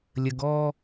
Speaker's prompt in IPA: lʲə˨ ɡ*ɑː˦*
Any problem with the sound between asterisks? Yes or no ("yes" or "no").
yes